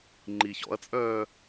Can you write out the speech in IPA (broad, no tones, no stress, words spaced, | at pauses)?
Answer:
ŋ͡ǃiçɔ̰ɐ̯t͡sʼœː